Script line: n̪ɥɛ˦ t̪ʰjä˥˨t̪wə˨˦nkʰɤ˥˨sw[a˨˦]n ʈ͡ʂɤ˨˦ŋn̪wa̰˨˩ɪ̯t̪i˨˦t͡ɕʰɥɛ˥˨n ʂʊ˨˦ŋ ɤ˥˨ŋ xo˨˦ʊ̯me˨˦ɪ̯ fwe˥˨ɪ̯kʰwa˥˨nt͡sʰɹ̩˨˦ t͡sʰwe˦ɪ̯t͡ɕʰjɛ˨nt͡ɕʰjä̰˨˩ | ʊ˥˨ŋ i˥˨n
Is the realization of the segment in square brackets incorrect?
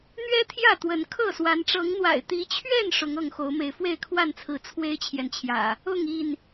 no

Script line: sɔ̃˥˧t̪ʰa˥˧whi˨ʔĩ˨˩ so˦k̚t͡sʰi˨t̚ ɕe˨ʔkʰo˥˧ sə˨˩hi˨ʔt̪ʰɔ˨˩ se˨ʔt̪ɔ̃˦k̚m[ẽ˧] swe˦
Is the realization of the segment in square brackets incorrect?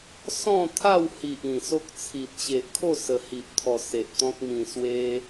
yes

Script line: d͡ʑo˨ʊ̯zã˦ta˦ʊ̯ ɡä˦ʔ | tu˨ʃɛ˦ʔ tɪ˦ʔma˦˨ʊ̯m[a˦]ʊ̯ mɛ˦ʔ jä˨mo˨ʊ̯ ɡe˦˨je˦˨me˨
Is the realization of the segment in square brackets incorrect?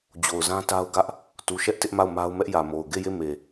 no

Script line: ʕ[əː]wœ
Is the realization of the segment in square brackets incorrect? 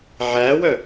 yes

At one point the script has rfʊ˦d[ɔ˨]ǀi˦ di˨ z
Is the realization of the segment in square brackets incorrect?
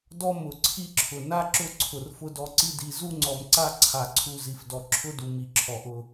yes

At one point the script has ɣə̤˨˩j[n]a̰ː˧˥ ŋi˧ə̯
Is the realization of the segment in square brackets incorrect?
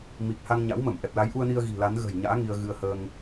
yes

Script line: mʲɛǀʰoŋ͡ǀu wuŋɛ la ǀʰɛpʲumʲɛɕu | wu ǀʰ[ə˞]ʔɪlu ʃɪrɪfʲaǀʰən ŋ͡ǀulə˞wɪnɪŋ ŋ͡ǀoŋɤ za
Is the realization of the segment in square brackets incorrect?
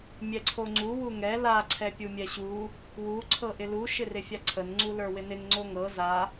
yes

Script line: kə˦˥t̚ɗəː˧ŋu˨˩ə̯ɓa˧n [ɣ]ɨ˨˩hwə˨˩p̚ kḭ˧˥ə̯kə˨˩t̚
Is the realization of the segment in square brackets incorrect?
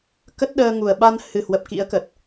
yes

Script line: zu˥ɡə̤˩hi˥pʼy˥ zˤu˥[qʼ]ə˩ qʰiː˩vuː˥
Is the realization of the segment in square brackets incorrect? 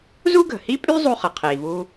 yes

